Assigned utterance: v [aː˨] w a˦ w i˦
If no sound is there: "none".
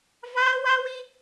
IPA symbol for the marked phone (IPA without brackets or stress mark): aː˦